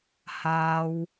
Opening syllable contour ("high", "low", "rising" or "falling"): high